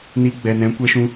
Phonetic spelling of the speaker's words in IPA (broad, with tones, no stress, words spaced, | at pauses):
ni˧ɡ͡bɛ˨nɛ̃˨˦ kʷɛ˦ʃũ˦